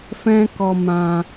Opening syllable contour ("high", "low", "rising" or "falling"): high